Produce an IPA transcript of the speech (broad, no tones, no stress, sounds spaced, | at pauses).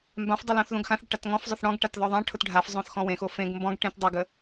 m b ã f dˤ ʊ l õ θ ð õ ɡ x ã θ ɽ ə ʈ a t ŋ ɔ̃ f zˤ ʊ θ ɽ ɔ̃ ɡ ʈ a t ð ɔ ðˤ ã ʈʰ ʊ t ɖʱ a f zˤ õ θ x ɔ̃ w ẽ x o f ẽ ɡ m b ɔ̃ ɡ ʈ ẽ t dˤ ʊ ɡ ə